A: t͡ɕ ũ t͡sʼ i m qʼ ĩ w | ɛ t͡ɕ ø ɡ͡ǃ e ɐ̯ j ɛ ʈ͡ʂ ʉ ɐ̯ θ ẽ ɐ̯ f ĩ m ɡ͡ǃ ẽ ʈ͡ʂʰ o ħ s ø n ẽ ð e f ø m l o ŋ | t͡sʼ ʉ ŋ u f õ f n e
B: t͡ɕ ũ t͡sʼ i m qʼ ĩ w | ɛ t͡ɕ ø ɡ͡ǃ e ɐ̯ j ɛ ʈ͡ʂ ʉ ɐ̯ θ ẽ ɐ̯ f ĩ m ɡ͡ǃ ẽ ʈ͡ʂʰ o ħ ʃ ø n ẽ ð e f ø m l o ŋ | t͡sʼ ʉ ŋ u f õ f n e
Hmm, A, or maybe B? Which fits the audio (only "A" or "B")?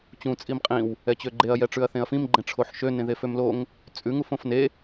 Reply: B